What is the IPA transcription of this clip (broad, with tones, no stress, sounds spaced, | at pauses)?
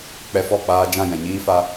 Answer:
k͡p ɛ˧ f ɔ˦˨ k͡p aː˧ d͡ʒ ã˦˨ j ɛ̃˨ ɲ iː˦ f a˧